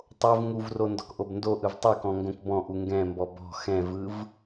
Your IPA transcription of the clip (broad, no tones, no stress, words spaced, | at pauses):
tˤov ŋuvro ndɔ̤kʔobndoʔɯv tˤɯkɔ̃ ŋɡõkbɔ̃ʔu ŋɡɛ̃mbɔ bɔ̤ xɛ̃vɯv